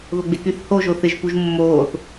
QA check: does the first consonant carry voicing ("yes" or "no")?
yes